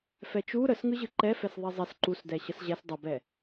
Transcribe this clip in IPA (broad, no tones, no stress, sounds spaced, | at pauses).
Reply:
f ɛ t͡ʃ u ɾ ə s ŋ ɯ ʑ ɯ ǃ ɛ f ɛ s ðˤ e zˤ e s ǃ u s d ɛ ɕ ə s ʑ ɛ s dˤ ə b ɛ